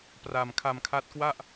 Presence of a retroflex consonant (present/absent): absent